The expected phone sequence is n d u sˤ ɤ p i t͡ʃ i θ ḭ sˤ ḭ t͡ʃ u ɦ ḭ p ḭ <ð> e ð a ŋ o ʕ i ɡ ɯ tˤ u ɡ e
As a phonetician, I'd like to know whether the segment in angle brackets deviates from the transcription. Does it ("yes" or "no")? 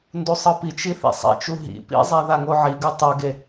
yes